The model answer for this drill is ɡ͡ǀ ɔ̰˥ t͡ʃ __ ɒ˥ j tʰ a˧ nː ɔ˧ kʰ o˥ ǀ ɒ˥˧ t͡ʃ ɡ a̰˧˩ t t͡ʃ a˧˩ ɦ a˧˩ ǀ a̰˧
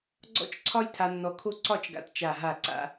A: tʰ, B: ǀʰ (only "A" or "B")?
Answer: B